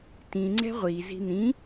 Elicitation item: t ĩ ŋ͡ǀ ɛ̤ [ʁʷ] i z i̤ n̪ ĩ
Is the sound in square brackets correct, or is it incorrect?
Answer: correct